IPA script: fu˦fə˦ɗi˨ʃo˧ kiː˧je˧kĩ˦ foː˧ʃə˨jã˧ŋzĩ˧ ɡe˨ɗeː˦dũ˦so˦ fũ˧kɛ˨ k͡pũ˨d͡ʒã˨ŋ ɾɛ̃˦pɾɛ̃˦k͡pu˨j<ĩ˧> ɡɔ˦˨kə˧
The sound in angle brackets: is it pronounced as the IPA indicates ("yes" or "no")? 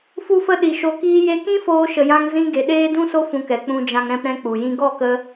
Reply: no